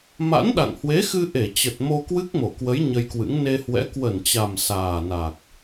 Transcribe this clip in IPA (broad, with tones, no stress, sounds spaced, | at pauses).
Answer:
m a̰˧˥ n ɗ a̰˧˨ ŋ h w e˨˦ x ɨ˧ ʔ e˧˩ t͡ɕ ə˨˩ t̚ m o˧ k w ɨ˦˥ k̚ m o˧˩ k w ə˨˦ j ɲ ə˧ j k w ɨ̰˧˥ ŋ n e˧ h w ɛ̰˧˥ k w ə˧˩ n t͡ɕ a˨˩ m s aː˨˩ n a˨˩ k̚